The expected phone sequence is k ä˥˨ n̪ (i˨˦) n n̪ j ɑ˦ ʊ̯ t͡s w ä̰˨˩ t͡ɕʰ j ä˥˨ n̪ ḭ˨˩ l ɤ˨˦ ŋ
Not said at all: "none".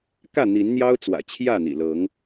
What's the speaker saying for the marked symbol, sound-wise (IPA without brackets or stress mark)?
i˨˦